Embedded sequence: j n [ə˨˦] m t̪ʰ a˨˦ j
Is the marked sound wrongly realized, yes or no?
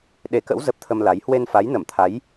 yes